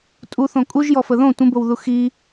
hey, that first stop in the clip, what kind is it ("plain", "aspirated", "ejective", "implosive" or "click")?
ejective